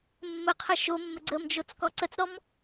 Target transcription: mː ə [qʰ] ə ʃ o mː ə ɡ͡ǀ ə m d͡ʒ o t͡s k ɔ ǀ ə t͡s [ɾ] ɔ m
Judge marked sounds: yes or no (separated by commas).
yes, yes